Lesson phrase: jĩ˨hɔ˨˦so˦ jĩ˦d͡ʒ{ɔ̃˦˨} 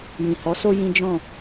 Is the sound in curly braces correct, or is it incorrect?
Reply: correct